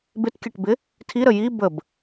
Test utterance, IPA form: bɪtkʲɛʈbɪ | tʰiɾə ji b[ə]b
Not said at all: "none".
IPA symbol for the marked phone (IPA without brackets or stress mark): ə